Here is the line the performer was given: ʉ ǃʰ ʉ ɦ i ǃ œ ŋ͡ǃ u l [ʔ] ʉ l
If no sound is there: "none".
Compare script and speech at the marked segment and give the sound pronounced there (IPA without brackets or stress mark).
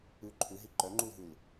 ɦ